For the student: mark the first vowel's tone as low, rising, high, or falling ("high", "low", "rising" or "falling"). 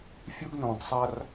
high